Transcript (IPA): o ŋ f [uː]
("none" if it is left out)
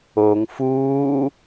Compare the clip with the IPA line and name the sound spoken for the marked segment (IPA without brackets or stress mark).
uː